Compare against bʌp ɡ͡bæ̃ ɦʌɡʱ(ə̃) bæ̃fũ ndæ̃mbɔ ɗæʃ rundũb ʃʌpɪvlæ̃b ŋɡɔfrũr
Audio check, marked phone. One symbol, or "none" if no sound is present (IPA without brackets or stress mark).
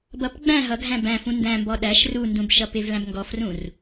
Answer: æ̃